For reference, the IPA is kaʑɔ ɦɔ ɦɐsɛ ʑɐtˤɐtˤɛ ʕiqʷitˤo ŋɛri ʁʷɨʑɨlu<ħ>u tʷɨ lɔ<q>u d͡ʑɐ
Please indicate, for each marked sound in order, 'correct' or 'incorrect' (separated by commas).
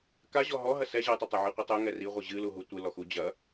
incorrect, incorrect